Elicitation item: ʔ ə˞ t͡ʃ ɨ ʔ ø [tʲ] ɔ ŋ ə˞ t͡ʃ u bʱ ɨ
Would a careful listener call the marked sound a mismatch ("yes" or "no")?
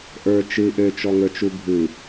yes